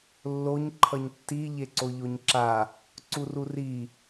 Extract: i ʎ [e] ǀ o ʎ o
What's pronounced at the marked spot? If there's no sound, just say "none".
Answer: e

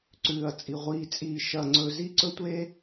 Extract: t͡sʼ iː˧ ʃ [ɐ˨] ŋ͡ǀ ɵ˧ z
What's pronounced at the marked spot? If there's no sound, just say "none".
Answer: ɐ˧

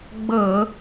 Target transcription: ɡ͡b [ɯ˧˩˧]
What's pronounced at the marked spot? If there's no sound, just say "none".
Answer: ɤ˧˩˧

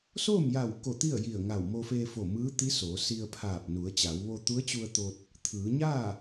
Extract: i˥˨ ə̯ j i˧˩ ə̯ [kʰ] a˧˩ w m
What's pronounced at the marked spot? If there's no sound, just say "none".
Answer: ŋ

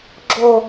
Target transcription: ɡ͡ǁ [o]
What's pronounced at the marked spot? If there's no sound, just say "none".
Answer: o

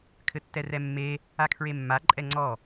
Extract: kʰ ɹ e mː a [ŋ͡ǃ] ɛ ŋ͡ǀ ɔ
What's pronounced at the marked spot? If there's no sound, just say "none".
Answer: ǃʼ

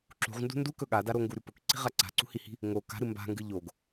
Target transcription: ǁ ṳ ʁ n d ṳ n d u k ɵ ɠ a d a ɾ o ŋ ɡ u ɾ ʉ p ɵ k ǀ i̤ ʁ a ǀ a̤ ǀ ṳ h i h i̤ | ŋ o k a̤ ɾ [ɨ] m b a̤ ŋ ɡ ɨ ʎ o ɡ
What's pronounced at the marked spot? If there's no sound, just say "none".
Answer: ɨ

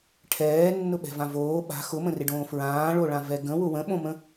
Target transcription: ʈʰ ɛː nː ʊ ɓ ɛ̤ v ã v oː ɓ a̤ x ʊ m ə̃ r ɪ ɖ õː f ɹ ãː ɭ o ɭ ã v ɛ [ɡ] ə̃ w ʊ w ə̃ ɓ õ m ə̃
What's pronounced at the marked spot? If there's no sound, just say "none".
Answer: ɡ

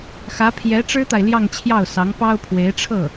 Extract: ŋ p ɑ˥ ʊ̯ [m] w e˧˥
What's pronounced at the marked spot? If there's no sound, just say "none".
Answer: pʰ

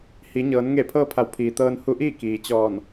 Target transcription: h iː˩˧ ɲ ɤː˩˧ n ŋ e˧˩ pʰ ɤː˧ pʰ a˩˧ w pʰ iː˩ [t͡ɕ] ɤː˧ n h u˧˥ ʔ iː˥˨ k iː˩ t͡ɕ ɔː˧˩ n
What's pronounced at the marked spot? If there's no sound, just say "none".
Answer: t̪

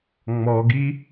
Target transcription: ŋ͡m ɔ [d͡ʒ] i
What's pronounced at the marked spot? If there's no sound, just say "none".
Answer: ɡ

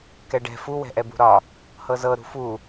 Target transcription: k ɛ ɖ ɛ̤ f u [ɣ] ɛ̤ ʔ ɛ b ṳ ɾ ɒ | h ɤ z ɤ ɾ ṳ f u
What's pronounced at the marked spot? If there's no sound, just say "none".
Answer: w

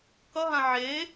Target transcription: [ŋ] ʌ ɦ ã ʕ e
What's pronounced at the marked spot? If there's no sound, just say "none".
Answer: k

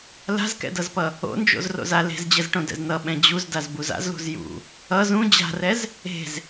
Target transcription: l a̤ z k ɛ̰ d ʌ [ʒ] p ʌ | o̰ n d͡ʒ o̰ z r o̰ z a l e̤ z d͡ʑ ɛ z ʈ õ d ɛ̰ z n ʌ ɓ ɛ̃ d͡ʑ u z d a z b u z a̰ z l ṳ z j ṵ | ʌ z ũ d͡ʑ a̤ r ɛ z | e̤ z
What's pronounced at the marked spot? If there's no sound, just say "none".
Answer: z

